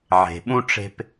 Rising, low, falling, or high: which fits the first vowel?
low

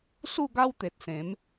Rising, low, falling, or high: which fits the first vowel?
falling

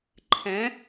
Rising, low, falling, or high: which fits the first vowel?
rising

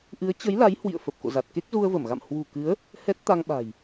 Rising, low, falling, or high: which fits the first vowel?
rising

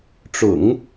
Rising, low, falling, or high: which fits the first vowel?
low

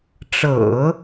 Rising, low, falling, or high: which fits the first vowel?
low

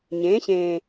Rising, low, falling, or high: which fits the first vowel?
rising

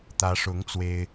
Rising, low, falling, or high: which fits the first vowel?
rising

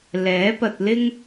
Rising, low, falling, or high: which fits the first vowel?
rising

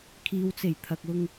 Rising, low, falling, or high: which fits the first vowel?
low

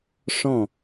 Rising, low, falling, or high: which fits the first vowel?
falling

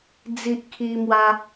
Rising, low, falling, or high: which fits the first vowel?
high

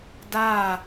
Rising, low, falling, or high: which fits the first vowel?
falling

